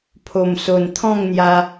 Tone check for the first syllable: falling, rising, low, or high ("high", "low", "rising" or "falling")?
low